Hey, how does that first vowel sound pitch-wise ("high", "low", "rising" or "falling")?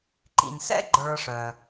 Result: low